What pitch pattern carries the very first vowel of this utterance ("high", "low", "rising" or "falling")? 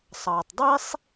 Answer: low